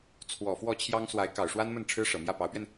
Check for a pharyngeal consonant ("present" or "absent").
absent